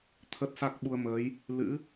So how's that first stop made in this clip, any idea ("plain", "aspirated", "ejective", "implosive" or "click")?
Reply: aspirated